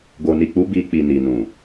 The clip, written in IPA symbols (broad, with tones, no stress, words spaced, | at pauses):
ɡo˨ni˨k͡pu˨˦ bi˧k͡pi˨ ni˨nũ˨